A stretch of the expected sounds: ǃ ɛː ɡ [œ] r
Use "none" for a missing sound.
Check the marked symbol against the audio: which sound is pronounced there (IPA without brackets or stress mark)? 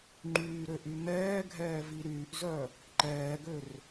ø